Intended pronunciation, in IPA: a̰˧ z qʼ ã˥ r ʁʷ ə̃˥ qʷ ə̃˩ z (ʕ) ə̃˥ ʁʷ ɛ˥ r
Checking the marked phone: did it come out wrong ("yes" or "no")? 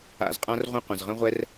yes